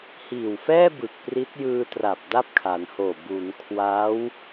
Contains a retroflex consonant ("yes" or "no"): no